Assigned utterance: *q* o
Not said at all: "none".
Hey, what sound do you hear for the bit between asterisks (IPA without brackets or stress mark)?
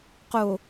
q